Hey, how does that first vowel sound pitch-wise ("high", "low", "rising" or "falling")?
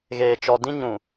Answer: low